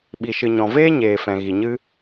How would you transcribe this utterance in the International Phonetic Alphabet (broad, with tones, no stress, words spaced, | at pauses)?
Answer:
ɓi˨ʃɨ˨ ɲɔ̃˨veː˦ ɲeː˨fɛ̃˨ɣi˨ɲɨ˦